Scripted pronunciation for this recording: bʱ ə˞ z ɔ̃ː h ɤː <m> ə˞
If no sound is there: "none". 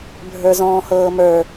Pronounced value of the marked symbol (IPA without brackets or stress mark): m